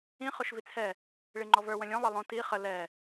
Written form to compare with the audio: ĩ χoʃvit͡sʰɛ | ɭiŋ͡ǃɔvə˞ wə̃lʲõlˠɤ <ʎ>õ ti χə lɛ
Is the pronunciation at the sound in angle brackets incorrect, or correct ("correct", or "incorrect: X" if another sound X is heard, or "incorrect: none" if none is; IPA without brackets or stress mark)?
incorrect: lˠ